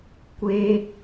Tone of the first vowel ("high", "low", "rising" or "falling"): high